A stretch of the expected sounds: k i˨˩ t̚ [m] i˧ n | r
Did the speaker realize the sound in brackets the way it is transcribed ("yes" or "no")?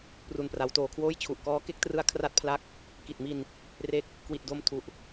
yes